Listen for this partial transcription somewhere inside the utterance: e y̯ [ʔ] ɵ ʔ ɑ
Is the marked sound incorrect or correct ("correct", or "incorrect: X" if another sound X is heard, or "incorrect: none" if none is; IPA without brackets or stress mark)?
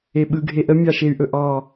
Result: correct